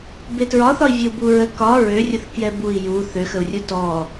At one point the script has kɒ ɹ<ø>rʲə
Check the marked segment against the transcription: correct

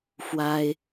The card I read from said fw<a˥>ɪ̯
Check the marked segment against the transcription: correct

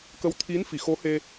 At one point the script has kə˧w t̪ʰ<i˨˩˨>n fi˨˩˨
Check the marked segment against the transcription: incorrect: i˧˥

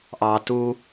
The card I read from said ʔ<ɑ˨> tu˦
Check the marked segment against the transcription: correct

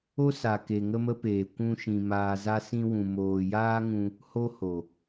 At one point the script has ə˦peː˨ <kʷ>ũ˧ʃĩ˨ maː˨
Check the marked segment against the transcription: correct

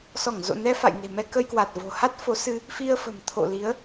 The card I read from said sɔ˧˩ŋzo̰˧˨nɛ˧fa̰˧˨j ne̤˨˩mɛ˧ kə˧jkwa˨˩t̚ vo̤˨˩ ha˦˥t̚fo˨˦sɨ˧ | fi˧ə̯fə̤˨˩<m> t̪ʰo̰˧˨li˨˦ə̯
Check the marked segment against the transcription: correct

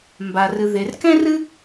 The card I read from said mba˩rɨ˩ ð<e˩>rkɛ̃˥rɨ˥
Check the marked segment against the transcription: correct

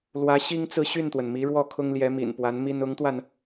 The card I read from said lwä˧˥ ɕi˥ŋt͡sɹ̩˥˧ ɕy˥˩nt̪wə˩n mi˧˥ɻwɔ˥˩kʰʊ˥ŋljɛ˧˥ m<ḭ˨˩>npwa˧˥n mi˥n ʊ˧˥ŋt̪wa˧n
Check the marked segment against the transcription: correct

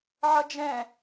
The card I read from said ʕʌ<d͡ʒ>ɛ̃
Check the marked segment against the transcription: correct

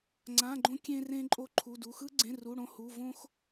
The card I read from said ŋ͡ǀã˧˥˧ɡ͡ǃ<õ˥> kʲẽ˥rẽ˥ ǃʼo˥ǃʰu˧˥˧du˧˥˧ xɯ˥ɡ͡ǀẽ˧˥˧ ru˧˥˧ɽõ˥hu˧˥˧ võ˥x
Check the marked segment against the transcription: correct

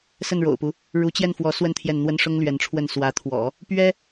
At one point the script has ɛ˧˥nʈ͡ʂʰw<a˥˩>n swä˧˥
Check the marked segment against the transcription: incorrect: ə˥˩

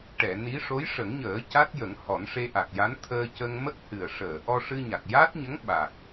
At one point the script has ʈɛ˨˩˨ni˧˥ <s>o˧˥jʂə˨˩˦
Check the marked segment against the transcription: incorrect: ʂ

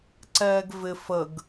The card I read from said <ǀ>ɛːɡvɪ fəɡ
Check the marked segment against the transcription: correct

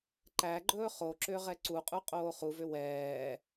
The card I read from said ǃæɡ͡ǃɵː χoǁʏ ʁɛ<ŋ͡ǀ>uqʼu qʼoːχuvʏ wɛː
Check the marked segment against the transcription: incorrect: ǀ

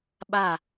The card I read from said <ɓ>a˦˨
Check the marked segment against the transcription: correct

